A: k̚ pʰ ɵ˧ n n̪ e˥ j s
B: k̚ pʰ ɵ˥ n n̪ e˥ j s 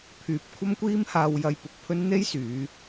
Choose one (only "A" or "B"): B